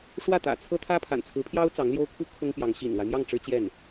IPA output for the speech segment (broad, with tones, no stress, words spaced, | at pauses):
ʂwä˥˩t̪ä̰˨˩ t͡sʰɤ˥t̪ʰä˥ pʰa̰˨˩nt͡sʰɹ̩˧˥pʰjɑ˥ʊ̯ t͡sɑ˧˥ŋljo˥ʊ̯kʰu˥ kʰʊ˥ŋpjɑ˧˥ŋ ɕḭ˨˩nlwa˦ɪ̯mjɑ˥˩ŋ ʈ͡ʂɻ̩˥t͡ɕjɛ˥˩n